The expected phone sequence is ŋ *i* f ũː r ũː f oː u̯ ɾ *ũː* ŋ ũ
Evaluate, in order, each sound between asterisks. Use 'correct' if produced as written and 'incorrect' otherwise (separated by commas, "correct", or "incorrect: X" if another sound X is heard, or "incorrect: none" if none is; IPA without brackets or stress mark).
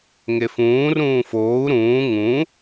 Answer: incorrect: e, correct